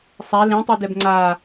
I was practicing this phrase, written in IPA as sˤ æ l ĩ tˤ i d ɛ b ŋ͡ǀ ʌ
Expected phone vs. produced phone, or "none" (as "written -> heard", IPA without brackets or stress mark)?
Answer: ʌ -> a